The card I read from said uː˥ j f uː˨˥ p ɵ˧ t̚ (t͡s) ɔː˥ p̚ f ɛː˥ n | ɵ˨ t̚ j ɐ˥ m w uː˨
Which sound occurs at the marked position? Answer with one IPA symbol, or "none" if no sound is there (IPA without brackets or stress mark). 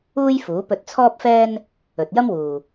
t͡sʰ